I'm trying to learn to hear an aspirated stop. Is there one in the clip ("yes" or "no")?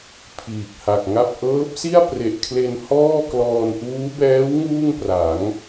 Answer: yes